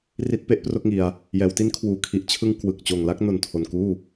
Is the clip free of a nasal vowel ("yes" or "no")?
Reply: yes